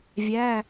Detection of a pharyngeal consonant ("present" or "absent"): absent